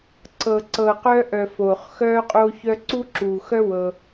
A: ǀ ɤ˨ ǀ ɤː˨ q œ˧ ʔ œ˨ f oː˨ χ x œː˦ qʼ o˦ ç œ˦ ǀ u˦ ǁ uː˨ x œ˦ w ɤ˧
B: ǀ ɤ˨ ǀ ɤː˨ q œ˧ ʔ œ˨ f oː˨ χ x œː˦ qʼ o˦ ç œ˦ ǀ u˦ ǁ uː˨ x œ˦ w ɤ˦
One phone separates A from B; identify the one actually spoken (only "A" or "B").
A